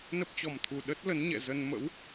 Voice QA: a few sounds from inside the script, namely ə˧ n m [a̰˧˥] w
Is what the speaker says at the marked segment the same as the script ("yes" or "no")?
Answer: no